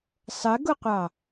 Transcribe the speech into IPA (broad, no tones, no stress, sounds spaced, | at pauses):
sˤ ə ɡ ʊ qʷ ɑ